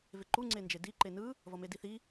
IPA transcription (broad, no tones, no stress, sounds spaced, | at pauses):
v e ǃ u ŋ͡ǀ e n d͡ʒ e d i ǃ e n ɯ | v ʌ m e d i θ i